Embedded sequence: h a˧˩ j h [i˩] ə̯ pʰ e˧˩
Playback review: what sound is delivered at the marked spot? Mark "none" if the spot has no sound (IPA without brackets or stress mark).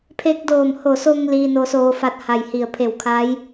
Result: i˧˩